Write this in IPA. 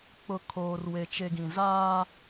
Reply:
k͡p ʊ˨ kʰ oː˨ r w e˨ t͡ʃ e˨ ɡ ĩ˨ z aː˦

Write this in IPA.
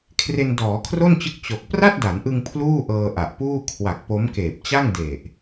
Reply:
kʰ r e˧ n d ɔː˩˦ kʰ r o˥˩ n t͡ɕ ɯ˦˥ k̚ t͡ɕ o˨˩ k̚ p r a˥˩ t̚ d a˩˦ n ʔ ɯ˧ ŋ pʰ l uː˥˩ ʔ ɤː˧ ʔ a˨˩ ʔ p uː˥˩ kʰ w a˨˩ k̚ p o˦˥ m k eː˨˩ p̚ t͡ɕ a˥˩ ŋ d e˨˩ ʔ

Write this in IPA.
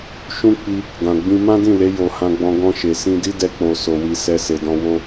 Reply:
ʃ ũ˦ k͡p i˧ | ɡ ã˨ ɡ͡b ĩ˧ m ã˦ d ĩ˦˨ l e˨˦ j o˧ h ã˦ ɡ͡b ɔ̃˦ ɡ ɔ̃˧ ʃ e˨ s ĩ˧ d i˦ d ɛ˧ k͡p o˨ s o˨ w i˧ s ɛ˦ s e˧ d ɔ̃˦ w o˦

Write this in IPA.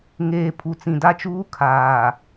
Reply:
ŋ eː˨ pʰ u˨ t͡s ĩ˨ d a˦ t͡ʃ uː˦ kʰ aː˨

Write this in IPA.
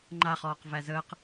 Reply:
ŋ͡ǃ a χ ɔː q v æ z əː q

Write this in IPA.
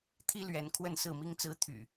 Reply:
t̪ʰ i˦ l ɥ ɛ˨˦ n kʰ w ə˥˨ n s ɹ̩˥˨ m i˦ ŋ t͡s ɹ̩˦ t̪ʰ y̰˨˩

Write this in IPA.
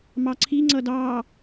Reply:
m ɑ ǀʰ i ŋ͡ǀ ʌ d ɑː

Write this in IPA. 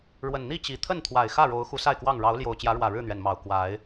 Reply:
ɻ w ə˨˩ n n̪ i˥˨ t͡ɕ i˨˩ t̪ʰ ə˥˨ n t̪ʰ w a˨˩ ɪ̯ x ä˥˨ ɻ o˨˦ ʊ̯ x u˨˦ s a˥˨ ɪ̯ k w ɑ˥˨ ŋ ɻ ɑ˨˦ ʊ̯ l j o˨˩ ʊ̯ t͡ɕ j ä˨˦ ɻ w ä˨˩ ɻ ɻ̩˥˨ n̪ ɥ ɛ˩ n m ɑ˨˩ ʊ̯ k w a˨˦ ɪ̯

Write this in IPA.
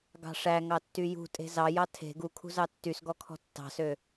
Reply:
ɡ ɑ̤ ʂ æ ŋ ɑ tː y j ṳ tʼ e̤ z ɑ j ɑ tʰ e̤ ɡ u kʰ ṳ z ɑ tː y s ɡ ɔ kʰ ɔ̤ tː ɑ̤ s ø

